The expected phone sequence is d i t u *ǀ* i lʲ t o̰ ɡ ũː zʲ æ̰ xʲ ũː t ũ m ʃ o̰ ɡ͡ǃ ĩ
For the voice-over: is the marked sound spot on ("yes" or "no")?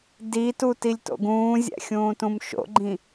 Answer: no